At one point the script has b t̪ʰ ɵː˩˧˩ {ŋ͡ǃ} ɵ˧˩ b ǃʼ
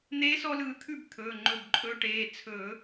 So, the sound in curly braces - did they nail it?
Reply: yes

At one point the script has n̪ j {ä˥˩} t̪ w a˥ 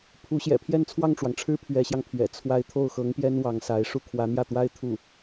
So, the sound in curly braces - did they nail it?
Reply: yes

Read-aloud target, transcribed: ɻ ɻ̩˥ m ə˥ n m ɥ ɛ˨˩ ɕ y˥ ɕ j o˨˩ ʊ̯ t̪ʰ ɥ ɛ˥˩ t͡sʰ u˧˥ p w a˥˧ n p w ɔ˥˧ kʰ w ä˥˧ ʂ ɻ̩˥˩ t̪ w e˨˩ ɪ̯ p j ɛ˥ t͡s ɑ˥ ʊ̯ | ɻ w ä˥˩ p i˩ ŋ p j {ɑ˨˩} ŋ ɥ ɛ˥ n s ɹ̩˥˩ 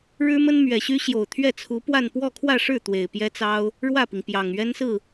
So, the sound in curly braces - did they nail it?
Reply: yes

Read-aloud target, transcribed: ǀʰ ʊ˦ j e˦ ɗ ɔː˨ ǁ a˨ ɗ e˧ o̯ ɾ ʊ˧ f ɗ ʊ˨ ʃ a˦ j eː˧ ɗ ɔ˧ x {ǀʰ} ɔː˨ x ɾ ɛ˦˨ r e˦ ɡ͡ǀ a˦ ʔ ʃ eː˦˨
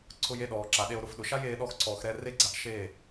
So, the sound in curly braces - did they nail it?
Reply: yes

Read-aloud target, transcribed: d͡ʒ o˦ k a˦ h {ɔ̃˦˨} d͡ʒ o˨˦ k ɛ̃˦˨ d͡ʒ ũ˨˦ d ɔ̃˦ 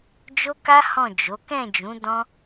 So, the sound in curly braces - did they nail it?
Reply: yes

